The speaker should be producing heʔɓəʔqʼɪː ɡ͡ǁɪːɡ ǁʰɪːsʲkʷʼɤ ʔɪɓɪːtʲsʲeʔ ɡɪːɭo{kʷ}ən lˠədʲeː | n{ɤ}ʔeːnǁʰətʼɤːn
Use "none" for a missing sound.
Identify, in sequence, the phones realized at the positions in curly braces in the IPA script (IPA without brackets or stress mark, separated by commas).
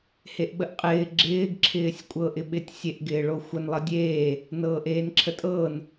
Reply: xʷ, ɤː